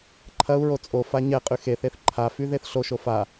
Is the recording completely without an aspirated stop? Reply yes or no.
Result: no